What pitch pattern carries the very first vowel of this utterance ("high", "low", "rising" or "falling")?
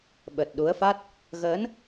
low